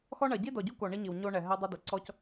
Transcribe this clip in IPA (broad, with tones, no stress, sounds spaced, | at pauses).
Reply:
x ɔ˦ ɳ ɐ˨ ɟ i˦ d ɔ˨ ɟ u˦ k o˨ ɳ i˦ ɲ i˨ w ɲ o˦ ɳ ɛ˨ ɦ ɛ˦ dˤ ɐ˦ d o˨ ǀ ɔ˦ c